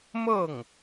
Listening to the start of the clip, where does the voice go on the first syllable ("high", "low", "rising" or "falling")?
falling